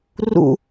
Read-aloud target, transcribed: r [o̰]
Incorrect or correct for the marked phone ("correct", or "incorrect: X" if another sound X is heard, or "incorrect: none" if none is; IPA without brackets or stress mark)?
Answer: incorrect: ṵ